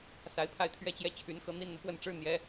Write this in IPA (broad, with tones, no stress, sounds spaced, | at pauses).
s a˧˥ ɪ̯ pʰ a˥˧ ɪ̯ t̪ʰ ɥ ɛ˥˧ t͡ɕ j ɛ˥˩ t͡ɕʰ y˧˥ n x ɤ˥ n̪ i˥ n n̪ ɤ˨ p w ə˥˩ n ʈ͡ʂ ɻ̩˥ n̪ j ɛ˧˥